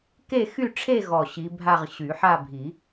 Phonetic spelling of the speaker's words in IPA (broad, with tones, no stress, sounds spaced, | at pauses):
k e˥˧ x y˥˧ ʈ͡ʂʰ e˥˧ ɣ ɔ˨˩ ɕ i˨˦ bʱ a˥˧ ʁ ɕ y˨˩˦ ħ a˥˧ bʱ i˨˩˦